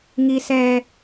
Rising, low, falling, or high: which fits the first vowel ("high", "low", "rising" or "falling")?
high